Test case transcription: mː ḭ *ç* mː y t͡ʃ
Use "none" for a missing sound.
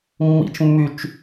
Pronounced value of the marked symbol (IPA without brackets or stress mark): t͡ʃ